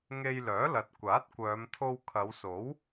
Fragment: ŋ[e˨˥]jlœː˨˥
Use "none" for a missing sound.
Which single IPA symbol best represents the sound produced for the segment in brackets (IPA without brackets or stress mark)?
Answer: e˧